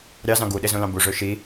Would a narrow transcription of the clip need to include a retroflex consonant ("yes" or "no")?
yes